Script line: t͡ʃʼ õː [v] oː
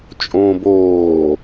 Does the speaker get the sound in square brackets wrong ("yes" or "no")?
yes